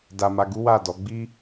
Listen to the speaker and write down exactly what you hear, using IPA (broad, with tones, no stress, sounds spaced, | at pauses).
d a˧ m a˧ ɡ u˦ w a˦˨ d ɔ˨˦ ɡ͡b i˦